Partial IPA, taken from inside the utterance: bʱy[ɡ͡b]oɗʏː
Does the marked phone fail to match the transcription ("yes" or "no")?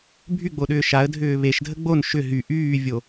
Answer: no